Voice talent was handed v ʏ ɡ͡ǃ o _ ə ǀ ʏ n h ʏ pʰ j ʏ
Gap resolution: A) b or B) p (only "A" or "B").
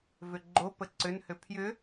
B